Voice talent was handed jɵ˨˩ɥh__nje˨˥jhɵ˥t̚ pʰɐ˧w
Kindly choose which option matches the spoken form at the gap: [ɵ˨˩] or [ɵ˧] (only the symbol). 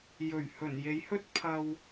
ɵ˨˩